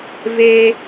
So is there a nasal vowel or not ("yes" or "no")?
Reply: no